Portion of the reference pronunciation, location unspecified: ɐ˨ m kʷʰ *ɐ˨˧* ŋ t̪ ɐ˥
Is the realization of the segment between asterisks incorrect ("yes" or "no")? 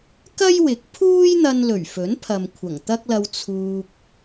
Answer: yes